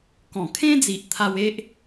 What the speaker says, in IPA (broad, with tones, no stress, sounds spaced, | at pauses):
k ɔ̃˨˩ kʰ ẽ˦ d͡z i˨ ʔ t̪ʰ a˧ w e˦ ʔ